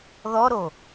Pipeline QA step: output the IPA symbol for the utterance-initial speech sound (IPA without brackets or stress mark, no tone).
ð